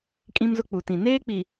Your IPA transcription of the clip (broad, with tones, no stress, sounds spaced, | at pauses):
kʼ ĩ˦ m z ʊ˦ k͡p u˨ t ĩ˨ n eː˦ k͡p i˨